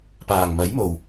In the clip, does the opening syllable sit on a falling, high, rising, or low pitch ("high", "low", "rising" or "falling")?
low